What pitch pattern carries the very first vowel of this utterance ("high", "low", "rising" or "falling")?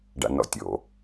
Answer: low